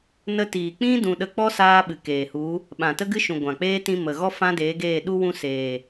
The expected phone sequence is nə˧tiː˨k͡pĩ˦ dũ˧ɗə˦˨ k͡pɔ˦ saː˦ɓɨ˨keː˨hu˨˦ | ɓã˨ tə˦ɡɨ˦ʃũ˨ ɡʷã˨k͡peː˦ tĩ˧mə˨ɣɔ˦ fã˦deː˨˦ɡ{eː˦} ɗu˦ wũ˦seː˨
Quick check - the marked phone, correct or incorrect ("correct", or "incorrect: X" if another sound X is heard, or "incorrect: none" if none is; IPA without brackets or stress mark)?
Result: incorrect: eː˦˨